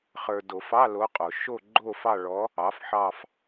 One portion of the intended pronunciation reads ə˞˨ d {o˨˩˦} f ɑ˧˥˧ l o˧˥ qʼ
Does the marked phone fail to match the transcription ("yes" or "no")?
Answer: no